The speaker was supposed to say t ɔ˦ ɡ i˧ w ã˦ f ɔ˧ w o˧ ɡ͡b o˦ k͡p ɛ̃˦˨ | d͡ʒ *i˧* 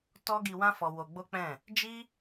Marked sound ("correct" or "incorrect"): incorrect